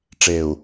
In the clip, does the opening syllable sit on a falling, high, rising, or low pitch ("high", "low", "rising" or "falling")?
low